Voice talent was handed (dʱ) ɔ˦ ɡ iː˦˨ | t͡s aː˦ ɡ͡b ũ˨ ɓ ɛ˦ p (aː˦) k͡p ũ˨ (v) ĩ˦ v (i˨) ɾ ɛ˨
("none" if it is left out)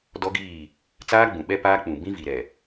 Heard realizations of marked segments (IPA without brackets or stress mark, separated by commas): d, aː˦, b, i˨